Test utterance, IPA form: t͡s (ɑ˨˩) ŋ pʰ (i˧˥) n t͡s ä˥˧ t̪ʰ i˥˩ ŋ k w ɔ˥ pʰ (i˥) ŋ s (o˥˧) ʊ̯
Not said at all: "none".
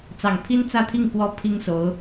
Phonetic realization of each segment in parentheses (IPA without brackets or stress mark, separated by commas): ɑ˨˩, i˥, i˥, o˧˥